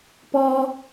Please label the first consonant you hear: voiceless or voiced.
voiceless